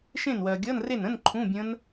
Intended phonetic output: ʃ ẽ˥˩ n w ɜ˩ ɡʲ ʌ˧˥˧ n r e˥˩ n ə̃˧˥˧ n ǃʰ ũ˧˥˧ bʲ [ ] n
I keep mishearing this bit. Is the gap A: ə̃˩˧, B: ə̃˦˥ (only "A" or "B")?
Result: B